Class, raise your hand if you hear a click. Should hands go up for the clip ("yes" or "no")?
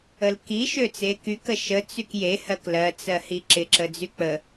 yes